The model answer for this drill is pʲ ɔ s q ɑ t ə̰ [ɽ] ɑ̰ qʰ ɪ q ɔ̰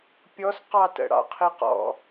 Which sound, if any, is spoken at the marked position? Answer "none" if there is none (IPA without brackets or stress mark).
ɽ